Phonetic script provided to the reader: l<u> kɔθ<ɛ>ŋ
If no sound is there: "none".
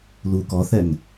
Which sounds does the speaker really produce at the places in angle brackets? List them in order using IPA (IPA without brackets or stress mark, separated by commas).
u, ɛ